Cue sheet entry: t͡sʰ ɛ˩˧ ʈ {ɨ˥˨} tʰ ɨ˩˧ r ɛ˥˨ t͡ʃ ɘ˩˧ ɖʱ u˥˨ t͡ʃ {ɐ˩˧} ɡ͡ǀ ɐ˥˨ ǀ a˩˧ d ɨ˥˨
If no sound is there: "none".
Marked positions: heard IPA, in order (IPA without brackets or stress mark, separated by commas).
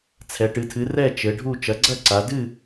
ɨ˩˧, ɐ˩˧